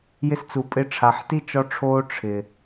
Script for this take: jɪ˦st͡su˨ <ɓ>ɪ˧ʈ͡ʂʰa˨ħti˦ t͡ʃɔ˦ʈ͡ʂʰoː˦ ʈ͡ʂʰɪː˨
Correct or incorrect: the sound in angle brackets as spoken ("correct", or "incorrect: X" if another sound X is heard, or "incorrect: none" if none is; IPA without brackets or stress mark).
incorrect: pʼ